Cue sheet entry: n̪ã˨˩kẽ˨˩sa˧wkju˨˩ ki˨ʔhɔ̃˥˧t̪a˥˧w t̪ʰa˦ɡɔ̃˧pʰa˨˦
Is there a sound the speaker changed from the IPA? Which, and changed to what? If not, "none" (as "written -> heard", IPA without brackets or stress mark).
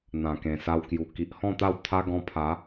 none